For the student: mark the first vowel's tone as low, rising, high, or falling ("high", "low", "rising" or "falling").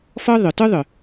high